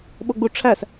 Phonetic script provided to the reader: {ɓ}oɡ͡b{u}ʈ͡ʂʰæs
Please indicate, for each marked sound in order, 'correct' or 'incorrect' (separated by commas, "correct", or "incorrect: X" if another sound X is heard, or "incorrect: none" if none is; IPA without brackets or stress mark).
correct, correct